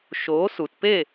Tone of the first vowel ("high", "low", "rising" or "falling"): rising